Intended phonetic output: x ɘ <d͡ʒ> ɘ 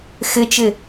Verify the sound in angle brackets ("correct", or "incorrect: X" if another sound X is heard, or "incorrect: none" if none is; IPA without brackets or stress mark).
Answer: incorrect: t͡ʃ